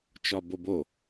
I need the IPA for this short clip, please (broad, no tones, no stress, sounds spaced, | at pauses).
t͡ʃ ɒ b o b o